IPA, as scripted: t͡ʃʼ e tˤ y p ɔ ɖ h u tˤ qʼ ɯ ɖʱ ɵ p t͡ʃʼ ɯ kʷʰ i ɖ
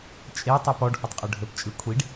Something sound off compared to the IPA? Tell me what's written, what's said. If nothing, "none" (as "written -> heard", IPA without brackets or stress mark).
none